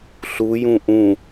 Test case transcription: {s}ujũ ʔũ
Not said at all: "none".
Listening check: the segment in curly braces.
ɬ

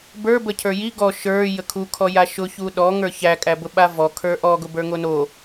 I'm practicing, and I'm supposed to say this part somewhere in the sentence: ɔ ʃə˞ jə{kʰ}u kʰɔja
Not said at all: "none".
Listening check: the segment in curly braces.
kʰ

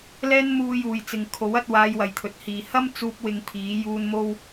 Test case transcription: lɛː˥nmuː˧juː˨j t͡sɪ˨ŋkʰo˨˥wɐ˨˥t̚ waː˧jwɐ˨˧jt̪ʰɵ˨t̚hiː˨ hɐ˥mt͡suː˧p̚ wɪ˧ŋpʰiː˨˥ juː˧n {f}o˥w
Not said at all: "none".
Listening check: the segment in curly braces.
m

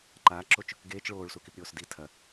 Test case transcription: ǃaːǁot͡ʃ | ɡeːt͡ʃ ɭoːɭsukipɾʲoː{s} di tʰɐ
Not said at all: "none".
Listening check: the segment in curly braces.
s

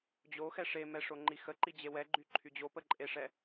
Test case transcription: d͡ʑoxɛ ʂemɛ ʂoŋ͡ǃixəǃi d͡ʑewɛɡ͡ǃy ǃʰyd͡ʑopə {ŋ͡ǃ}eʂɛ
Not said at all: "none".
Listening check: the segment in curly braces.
ǃʼ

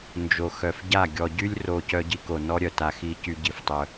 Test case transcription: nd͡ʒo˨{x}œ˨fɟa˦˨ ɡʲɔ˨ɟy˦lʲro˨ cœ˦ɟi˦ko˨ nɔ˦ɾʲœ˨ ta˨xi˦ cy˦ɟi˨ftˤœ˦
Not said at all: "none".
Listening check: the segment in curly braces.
x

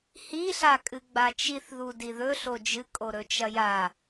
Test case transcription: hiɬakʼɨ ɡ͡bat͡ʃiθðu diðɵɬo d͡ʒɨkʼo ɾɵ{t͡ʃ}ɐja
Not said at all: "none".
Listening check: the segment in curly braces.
t͡ʃ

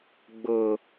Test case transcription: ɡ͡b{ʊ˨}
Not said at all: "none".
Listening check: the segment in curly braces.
ʊ˨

